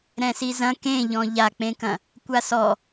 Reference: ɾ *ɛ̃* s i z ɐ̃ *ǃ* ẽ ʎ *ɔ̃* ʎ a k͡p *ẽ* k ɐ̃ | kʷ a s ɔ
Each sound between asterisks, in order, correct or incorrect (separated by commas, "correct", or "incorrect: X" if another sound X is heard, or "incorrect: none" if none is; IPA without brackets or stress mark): correct, incorrect: k, correct, correct